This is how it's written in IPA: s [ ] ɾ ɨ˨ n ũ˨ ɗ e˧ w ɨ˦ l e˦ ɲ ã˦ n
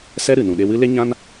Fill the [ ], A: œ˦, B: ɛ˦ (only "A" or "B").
B